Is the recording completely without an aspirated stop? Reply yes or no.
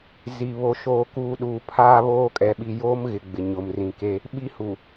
no